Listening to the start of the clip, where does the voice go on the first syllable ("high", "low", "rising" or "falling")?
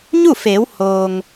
falling